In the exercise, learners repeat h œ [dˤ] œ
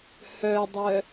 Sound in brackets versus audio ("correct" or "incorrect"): correct